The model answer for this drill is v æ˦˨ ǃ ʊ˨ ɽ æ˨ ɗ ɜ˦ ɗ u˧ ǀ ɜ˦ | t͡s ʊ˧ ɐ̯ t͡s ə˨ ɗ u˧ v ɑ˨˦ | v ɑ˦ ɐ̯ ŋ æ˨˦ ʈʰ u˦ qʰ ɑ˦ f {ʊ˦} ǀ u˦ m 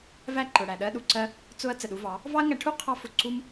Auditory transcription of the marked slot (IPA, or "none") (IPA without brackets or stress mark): ʊ˧